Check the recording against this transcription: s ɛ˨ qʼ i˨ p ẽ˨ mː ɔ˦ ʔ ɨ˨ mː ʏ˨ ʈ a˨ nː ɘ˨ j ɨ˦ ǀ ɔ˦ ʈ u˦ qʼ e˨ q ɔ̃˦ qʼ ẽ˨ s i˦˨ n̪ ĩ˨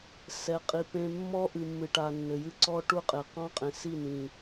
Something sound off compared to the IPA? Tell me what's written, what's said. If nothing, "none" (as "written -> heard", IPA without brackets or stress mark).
ʏ˨ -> ɨ˨